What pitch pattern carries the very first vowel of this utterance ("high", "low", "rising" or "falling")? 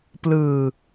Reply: low